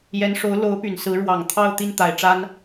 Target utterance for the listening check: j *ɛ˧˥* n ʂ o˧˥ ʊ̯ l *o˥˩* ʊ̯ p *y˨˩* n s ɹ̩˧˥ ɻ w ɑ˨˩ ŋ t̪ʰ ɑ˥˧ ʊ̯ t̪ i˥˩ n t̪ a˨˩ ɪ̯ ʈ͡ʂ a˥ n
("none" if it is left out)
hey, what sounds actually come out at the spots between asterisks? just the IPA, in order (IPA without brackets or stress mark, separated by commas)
ɛ˧˥, o˧˥, y˨˩